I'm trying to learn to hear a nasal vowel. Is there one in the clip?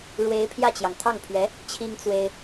no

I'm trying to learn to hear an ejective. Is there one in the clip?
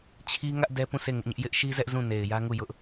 no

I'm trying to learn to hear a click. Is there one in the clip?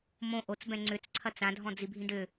yes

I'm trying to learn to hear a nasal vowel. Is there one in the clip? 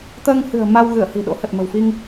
no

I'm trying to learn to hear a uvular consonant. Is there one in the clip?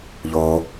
no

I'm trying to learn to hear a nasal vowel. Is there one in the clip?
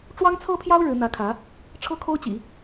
no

